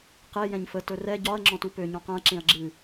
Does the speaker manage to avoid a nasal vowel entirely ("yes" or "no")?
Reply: no